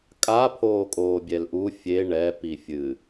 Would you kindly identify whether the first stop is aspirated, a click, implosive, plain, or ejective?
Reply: ejective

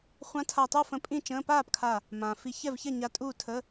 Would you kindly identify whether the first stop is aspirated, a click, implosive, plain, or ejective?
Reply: aspirated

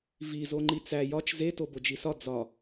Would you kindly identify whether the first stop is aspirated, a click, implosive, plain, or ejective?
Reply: click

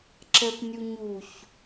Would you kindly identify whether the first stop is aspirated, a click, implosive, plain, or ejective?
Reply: click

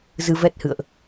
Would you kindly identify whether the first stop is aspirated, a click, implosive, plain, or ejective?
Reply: plain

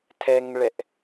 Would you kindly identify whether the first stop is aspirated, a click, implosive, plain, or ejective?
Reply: aspirated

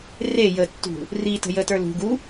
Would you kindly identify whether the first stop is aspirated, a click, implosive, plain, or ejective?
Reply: plain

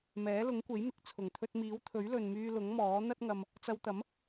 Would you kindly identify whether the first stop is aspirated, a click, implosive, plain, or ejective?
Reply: plain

